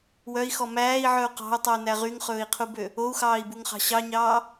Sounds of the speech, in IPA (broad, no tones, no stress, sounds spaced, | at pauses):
w œ i̯ x ɔ m æː i̯ ʕ œ u̯ q ɑ̤ u̯ tˤ ɵ u̯ n æ ʁ y ŋ χ ɵː i̯ qʰ u b ø | o u̯ x ɑː i̯ b u ŋ χ ɑ̤ ɕ ɑ ɲ ɑː